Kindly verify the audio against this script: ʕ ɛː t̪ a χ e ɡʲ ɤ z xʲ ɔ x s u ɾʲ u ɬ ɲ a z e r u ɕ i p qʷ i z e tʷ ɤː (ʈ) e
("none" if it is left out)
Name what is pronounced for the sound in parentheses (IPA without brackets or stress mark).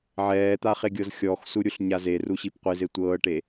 ʈ